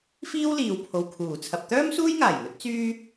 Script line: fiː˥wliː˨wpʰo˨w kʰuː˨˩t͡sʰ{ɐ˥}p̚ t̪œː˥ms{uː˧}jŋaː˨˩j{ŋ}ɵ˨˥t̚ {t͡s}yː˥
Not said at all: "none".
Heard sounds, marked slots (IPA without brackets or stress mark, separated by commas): ɐ˨, uː˥, ŋ, t͡s